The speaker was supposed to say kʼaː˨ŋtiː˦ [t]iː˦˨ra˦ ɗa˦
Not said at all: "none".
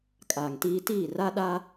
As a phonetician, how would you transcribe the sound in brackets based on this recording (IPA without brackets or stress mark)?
t